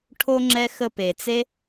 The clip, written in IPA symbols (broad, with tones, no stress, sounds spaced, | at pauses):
ʈʰ o˧ ŋ͡ǁ ɛ˧ x ə˧ p e˨ t͡s e˦